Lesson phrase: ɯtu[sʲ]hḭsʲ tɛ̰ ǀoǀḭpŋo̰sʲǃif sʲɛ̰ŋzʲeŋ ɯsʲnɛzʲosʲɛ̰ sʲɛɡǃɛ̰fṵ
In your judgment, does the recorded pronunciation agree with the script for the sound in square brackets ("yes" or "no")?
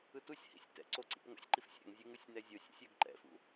yes